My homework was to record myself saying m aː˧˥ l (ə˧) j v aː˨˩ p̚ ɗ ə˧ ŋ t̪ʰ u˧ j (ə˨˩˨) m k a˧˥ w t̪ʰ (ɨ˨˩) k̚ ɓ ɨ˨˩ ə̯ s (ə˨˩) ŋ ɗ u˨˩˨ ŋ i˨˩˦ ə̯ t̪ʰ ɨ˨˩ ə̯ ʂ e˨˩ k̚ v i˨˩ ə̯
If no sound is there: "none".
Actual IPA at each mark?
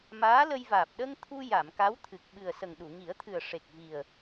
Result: ə˧, a˨˩˨, ɨ˨˩, ə˨˩

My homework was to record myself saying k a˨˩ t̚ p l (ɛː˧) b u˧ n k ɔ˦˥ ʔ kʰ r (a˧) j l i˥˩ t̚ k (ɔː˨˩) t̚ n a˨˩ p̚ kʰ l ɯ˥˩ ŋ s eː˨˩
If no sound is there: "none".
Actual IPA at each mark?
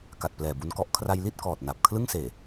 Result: ɛː˨˩, a˧, ɔː˨˩

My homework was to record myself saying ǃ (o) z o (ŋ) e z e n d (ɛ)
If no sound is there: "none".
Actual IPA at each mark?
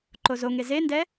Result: o, ŋ, ɛ

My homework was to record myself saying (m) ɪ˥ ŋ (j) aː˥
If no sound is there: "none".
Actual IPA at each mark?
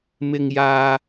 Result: m, j

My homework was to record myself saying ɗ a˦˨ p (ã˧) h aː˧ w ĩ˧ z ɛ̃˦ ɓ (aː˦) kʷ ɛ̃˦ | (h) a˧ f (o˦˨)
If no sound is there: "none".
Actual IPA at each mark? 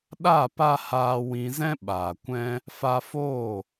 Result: a˧, aː˨, f, oː˦˨

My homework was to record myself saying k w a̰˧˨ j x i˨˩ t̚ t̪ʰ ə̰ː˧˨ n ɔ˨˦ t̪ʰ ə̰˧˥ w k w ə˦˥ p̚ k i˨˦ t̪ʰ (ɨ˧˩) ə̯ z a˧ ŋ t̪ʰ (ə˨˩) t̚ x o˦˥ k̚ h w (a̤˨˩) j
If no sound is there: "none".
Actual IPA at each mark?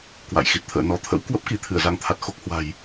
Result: ɨ˧˩, a˨˩, a̤˨˩

